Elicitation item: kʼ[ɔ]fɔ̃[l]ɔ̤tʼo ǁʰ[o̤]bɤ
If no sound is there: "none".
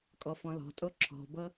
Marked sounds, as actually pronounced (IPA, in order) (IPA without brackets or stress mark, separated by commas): ɔ, l, ɔ̤